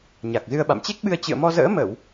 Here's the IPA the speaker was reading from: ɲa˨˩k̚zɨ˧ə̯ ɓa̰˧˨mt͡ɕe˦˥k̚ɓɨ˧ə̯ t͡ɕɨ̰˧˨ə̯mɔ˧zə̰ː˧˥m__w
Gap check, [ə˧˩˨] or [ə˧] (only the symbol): ə˧˩˨